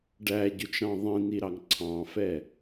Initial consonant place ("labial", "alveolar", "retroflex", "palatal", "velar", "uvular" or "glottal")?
retroflex